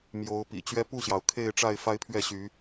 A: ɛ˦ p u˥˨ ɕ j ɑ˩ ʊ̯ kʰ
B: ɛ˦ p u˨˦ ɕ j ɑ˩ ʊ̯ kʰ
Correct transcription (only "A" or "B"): A